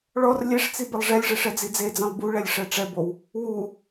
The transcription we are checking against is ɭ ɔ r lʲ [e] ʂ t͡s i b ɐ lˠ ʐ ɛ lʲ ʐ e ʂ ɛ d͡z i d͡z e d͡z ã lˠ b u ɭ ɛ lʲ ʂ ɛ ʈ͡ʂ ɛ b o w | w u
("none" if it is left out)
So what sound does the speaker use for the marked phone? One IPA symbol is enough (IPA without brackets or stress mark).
e